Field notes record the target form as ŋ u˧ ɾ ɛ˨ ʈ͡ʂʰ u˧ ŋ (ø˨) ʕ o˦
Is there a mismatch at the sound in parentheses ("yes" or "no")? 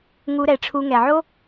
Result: yes